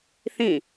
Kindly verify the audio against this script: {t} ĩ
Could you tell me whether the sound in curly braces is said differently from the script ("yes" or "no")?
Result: yes